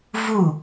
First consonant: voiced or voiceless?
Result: voiced